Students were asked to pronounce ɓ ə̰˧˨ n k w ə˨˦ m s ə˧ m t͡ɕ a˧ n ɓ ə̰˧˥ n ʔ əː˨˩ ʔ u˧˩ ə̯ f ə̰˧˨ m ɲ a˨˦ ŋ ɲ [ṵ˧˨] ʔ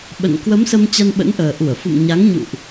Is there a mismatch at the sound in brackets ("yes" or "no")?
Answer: no